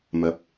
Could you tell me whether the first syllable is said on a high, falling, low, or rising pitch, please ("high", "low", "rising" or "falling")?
rising